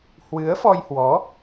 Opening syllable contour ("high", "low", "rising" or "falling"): rising